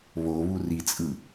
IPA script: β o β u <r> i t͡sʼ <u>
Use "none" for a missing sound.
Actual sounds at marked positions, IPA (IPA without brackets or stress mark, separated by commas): r, ɯ